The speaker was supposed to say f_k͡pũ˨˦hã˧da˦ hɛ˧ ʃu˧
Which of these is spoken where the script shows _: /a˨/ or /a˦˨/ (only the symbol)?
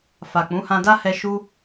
a˨